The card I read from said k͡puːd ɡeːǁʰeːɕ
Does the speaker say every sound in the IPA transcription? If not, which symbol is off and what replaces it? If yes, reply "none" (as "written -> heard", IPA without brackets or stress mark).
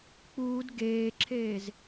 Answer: ɕ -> z